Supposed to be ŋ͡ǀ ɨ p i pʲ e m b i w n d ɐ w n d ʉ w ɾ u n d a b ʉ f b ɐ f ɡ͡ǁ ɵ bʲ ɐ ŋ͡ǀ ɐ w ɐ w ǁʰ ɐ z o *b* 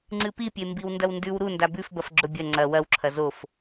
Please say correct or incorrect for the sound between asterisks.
incorrect